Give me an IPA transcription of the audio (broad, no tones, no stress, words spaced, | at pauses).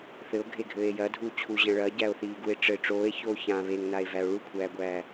θɘo̯ɡʱeɡʱɘːe̯ jɐdʱuː t͡ɕʰuʑɐ̃ ɭɐɟæo̯θiːɡue̯ ʈ͡ʂɘ ʈ͡ʂoːe̯çoː çã βeŋnae̯væo̯ ɭukʷʰæːɡʷæː